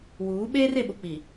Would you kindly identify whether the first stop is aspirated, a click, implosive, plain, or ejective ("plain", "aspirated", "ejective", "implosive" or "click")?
implosive